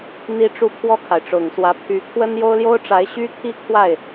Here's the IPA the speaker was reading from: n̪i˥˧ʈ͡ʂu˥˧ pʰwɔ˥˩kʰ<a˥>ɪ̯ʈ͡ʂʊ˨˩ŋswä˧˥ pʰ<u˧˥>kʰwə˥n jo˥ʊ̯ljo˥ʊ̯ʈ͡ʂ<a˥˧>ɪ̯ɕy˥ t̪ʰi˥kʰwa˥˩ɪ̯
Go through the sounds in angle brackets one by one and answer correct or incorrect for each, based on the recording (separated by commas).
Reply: incorrect, incorrect, incorrect